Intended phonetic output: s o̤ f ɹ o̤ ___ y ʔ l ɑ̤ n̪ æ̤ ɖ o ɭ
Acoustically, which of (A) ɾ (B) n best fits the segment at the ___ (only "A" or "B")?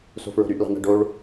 A